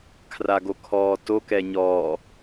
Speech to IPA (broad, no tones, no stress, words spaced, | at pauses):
kʰraɡokʰɔːto kɛɲɔː